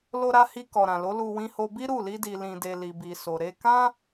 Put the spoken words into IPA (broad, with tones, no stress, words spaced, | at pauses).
lo˧ɾa˧hi˧ kɔ˨ɾã˨lo˨˦lu˧ wĩ˧ho˧bi˦ ɾu˦˨ li˧di˨ lĩ˧de˧ li˨bi˨so˨ ɾe˧kã˦